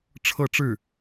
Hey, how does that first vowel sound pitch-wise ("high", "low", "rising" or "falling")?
falling